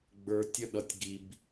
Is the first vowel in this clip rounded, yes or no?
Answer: no